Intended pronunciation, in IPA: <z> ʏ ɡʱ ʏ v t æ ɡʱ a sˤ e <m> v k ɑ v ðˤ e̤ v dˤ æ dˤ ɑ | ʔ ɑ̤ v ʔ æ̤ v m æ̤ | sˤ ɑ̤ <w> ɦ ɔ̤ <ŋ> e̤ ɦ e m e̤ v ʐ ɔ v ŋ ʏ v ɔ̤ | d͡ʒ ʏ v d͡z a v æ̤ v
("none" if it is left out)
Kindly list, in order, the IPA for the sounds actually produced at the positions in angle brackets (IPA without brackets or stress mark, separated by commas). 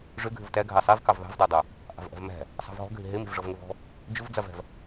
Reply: ʐ, none, v, ɡʱ